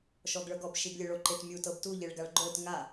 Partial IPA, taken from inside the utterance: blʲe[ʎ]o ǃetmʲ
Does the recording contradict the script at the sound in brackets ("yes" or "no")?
yes